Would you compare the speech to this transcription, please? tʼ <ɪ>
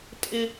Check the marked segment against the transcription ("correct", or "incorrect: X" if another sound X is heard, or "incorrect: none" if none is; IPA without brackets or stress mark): correct